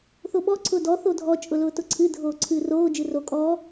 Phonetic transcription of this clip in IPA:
θ o ɓ ɔ ǀʰ ʊː d ɔ θ o dʱ ɔ t͡ʃʼ ʊ l ʊː t ʊ ǀʰ ɨ dʱ oː ǀʰ ɨː r oː d͡ʒ ɨ r o kʼ ɔ

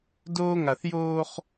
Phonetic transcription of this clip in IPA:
d oː˦ ŋ a˨ θ j oː˦ χ

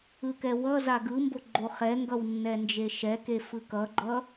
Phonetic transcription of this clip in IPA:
ɯ k ɛ w ʌ z a ɡ ɯ m b o ɡ͡ǃ o χ ɛ ŋ ɡ ʌ w nː ɛ n d͡ʒ e ʃ ɛ k e f ɯ k ʌ ɡ͡ǃ ʌ

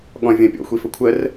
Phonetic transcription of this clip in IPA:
ɠ ɔ̃ vʲ ə̃ pʲ ɔ̰ xʷ i f ə kʷʰ ə r

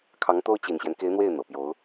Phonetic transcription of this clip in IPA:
kʰ ɑ˧˥ ŋ t̪ o˥ ʊ̯ t͡ɕ i˨˩ n ɕ j ɛ˦ n k e˧˥ ɪ̯ n̪ w e˥˩ ɪ̯ n̪ ɤ˨˩ p j o˧˥ ʊ̯

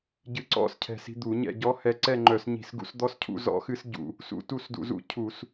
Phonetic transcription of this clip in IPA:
ɟ ɨ˧ ǀ ɔ̰˥˨ s cʰ ɛ̤˧˩˧ s i̤˧ d̪ u˧˩˧ ɲ ɛ̰˥˨ ɟ ɔ˧˥ h ɛ˧ ǀ ɛ˥˨ ŋ͡ǃ œ˧˩˧ s ɲ i̤˧˩˧ s ɡ ṵ˧ s d̪ ɔ˧˥ s cʰ ṵ˥˨ z ɔ̰˧˥ x ɨ˧˥ s ɟ ṵ˧˩˧ | s ṵ˧˩˧ t u˥˨ s d ṵ˧˩˧ z ṵ˧˥ cʰ u˧˩˧ s

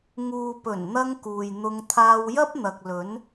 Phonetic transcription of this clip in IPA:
ŋ uː˨ p ɵ˨˩ n n̪ ɐ˧ ŋ k uː˨ j n̪ ʊ˧ ŋ t̪ʰ aː˧ w j ɐ˥ p̚ n̪ ɐ˨ k̚ l ɵ˨˥ n

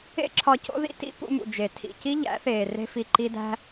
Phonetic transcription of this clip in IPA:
ḛ˦ ǁʰ ɒ˧ c o̰˦ ð ḭ˦ t ḭ˦ p ṵ˧ m ṵ˨ d͡ʒ e˨ tʰ ḭ˨ c i˦ ʎ æ̰˨˦ θ eː˨ r e̤˦ f i˧ ǃ i˦ d æ̤˦

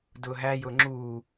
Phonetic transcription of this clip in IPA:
d ʊː ɦ æ j ʊː ŋ͡ǁ uː

